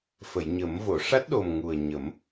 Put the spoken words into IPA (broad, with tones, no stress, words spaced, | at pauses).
fə˨˩˨jɲə˨˩˦m vo˨˩˨ʂa˦˥t̚ɗo˨˩m ŋu˨˩ə̯ɲə˨˩˦m